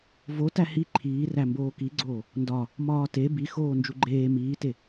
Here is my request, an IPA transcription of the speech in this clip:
v o t æ h i ǃʰ iː r æ m b oː k i ɡ͡ǀ oː | n d ɒ | m ɒː t e b i x oː n d͡ʒ u ɡ͡ǃ eː m iː t e

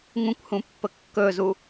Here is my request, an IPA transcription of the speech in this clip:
ŋ ũ kʷ h ũ pː ə kː ɵ z u

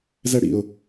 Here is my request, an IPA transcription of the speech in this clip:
z ɛ ɽ ḭ ʊ̯

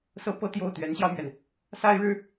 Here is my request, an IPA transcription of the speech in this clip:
s ɤ˧˥ p ɤ˧˥ t̪ j o˥˩ ʊ̯ t̪ ɥ ɛ˧˥ n ɕ j ɑ˧ ʊ̯ m ɥ ɛ˩ n | s a˥ ɪ̯ ɻ ɻ̩˥

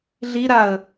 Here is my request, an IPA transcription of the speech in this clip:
ɮ i ɾ a ə̯

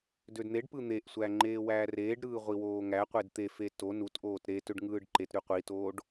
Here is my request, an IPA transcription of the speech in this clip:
d ø d n̪ e ɖ p ɯ n̪ e ʔ sʷ æ ŋ͡ǃ eː w æː r eː ɖ ɾ ɯː ʁʷ i w oː ŋ æ qʷ e d t̪ e f e t o n u t ʔ oː t ɾ e t ø ɖ ŋ ɯː ɖ ǃ e t ɾ y qʷ i t oː ɖ

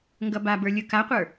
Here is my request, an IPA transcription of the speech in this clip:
ŋ ɡ ʌ b a b ə˞ lʲ ɯ k a qʷ ə˞

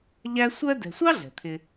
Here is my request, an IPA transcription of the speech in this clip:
ʎ æ˦ sʷ ɜ˥ d ɛ̤˨ sʷ ɑ˥ ɮ ɛ̤˩ t̪ʰ ɪ˨

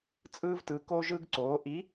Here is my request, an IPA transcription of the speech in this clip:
t͡sʼ ɯː˥ v t ɯ˧˥ k o˥ ʒ ɯ˥ ɡ ǀ oː˧˥ ʔ i˧˥

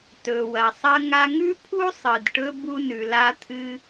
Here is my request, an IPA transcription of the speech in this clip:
t ɵ˩ w ɐ˩ sˤ ɐ˧ ŋ a˧ ŋ ʉ˥ pʰ u˥ sˤ ɨ˩ d ʈ ɵ˧ b u˧ n ʉ˩ l a˧ t̪ʰ ɨ˧

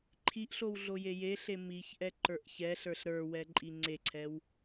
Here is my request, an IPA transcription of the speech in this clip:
ǃʰ i ʔ ɬ o w ɮ o j e j e ɬ e m i ç ʔ ɛ ǃ ə˞ ʔ ç ɛ ɬ ə˞ ɬ ɾ ə˞ w ɛ ǃʼ i ŋ͡ǀ e ǀʰ ɛ w

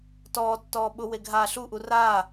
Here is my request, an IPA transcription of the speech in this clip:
t ɔː tː ɔː ɓ ʊ w e ɡʱ aː ɬ u ʔ u r aː

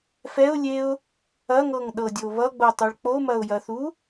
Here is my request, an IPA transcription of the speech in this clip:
f ɛ ʊ̯ lʲ e ʊ̯ | ɐ ŋ ɤ ŋ ɗ ɤ dʲ o β ʌ ɡ͡b o tˤ u ɭ k͡p o m ɐ ʊ̯ j ɐ θ u

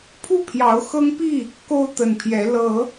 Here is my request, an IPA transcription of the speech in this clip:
pʰ u˥˨ pʰ j ɑ˨˦ ʊ̯ x ɤ˦ ŋ p i˥˨ | k o˦ ʊ̯ t̪ ə˨˩ n pʰ j ɛ˨˦ l ɤ˨˦

